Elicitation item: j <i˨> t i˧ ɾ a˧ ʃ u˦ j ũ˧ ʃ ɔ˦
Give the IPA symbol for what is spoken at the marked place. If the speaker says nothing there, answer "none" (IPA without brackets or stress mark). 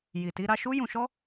i˨